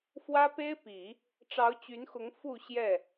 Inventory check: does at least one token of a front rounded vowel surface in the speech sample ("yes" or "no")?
yes